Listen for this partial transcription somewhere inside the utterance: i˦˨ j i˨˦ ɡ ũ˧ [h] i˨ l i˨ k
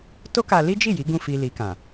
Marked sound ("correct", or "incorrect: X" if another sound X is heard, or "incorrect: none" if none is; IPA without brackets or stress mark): incorrect: f